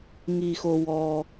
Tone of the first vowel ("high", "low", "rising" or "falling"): low